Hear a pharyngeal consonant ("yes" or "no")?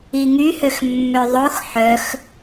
yes